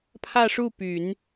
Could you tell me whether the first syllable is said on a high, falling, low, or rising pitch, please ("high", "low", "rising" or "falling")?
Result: falling